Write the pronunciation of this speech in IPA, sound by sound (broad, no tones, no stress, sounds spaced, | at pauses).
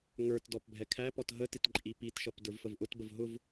ŋ ə˞ t d ɔ p bʱ ɛ kʰ æ p ɔ t ɦ ə t ɪ t ǃʼ i p i t ʃ ʌ p d ə˞ v f ə v ʔ ʊ t b ə v ɦ ʊ v